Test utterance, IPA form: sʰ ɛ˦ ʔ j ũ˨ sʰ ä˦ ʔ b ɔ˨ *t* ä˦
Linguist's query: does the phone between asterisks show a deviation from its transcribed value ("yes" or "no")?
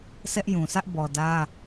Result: yes